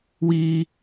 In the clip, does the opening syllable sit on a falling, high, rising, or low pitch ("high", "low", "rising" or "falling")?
high